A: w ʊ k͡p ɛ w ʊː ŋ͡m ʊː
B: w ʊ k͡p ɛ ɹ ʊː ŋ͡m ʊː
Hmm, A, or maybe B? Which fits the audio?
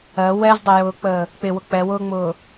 A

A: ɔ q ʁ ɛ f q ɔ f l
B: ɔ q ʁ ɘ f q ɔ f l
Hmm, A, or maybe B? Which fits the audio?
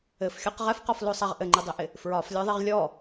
A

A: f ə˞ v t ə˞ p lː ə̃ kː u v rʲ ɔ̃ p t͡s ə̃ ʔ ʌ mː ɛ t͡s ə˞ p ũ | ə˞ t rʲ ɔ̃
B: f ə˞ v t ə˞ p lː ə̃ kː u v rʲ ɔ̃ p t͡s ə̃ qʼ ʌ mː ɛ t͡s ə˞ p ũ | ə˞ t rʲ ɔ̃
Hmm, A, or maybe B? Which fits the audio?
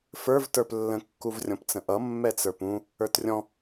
A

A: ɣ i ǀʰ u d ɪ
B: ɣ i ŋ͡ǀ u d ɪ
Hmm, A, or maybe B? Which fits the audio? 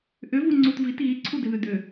A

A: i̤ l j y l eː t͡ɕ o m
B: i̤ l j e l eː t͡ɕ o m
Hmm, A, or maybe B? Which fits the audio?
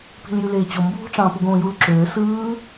A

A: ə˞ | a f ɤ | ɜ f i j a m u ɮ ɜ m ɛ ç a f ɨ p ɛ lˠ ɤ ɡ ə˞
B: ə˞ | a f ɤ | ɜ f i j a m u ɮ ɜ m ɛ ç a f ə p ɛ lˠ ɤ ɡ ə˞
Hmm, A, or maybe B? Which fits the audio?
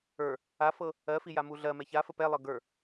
B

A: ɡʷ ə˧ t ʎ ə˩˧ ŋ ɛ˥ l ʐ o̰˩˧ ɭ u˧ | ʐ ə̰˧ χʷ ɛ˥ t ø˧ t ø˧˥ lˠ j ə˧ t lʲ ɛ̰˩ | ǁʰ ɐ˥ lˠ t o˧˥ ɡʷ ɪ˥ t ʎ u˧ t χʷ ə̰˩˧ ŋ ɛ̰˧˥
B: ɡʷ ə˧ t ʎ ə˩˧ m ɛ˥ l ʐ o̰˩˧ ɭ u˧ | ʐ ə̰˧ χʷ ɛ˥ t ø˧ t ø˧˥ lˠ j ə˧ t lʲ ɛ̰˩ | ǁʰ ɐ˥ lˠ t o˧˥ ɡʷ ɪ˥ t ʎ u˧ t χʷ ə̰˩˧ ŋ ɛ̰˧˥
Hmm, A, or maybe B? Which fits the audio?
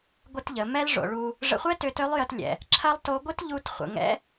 B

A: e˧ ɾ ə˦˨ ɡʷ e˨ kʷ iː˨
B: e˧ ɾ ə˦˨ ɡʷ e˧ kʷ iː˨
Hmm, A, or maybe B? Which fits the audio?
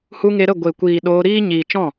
A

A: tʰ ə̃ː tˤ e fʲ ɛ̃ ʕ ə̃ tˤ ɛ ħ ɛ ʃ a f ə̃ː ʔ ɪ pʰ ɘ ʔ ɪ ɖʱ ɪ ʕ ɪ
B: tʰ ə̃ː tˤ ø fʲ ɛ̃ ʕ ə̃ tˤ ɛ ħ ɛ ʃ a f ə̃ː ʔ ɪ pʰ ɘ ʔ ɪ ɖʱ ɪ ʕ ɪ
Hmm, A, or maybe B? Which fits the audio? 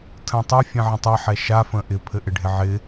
B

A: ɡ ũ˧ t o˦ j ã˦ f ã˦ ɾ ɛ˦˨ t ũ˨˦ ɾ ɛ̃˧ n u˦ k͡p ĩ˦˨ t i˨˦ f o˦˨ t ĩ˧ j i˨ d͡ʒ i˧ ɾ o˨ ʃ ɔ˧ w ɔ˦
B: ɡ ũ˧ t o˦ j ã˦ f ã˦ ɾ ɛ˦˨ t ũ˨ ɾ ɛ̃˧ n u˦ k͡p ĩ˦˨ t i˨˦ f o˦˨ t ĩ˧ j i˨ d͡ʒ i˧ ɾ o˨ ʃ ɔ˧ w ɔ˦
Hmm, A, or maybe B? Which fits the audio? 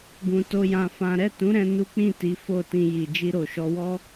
A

